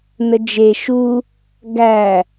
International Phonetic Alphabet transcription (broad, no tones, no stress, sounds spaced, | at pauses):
n ə d͡ʒ e ʃ u | ɡ æ